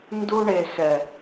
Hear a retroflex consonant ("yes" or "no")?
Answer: yes